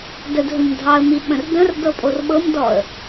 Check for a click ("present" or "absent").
absent